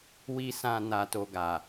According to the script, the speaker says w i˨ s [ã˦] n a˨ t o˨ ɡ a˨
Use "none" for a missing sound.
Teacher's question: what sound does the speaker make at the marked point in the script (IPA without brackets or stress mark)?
ã˨